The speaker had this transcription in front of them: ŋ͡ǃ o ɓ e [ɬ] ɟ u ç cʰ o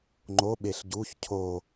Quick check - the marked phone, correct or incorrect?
correct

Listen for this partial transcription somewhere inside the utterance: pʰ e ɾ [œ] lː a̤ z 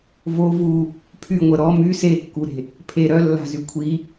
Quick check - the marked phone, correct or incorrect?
correct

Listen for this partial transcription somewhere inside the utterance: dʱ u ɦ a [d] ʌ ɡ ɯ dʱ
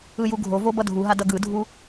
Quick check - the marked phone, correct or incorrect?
correct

